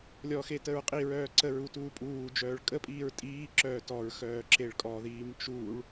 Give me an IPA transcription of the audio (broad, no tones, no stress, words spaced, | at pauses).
lʲɔxe təɹqʼiɹœː ǀəɹu tuːpʼuːd͡ʒœːɭ kʼəpʼiːɹ tʼiːǁœː tɔɹ xœːǁeɭkʼɔðiːm t͡ʃuːɭ